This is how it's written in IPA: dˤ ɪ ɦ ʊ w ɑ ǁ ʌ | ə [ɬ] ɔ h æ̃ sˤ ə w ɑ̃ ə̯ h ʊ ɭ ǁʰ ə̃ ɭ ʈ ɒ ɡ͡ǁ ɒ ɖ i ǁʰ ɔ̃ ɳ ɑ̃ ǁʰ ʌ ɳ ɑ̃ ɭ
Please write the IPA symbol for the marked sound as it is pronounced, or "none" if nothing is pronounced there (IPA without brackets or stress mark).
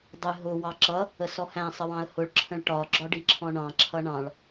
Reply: s